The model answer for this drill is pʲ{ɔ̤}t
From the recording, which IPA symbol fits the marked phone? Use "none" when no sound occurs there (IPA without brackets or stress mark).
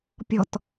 ɔ̤